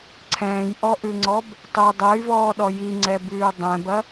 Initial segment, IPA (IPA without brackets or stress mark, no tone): ǀʰ